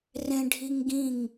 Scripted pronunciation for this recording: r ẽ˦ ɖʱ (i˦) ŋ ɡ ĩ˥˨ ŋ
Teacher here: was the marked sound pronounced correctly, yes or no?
yes